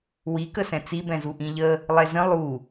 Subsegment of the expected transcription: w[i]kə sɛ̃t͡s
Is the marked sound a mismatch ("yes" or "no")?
no